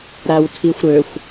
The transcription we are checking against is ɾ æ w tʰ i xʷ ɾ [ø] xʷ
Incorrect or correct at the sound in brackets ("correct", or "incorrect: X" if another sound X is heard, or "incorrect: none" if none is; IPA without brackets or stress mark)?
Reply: correct